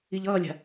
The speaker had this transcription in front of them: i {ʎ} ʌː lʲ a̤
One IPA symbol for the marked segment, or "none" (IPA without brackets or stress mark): ʎ